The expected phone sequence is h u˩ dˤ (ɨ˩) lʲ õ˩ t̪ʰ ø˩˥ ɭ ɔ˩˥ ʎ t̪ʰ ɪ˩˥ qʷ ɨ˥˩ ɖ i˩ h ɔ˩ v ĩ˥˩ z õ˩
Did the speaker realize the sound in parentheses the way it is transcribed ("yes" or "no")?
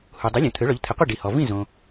no